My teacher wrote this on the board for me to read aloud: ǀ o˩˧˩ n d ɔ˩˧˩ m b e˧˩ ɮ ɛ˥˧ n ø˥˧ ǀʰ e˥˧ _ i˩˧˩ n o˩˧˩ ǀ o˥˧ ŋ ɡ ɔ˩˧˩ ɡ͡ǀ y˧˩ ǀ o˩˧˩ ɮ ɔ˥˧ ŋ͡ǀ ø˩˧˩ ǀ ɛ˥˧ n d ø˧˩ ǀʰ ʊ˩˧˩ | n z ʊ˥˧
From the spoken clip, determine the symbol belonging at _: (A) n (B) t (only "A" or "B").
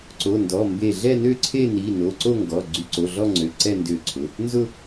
A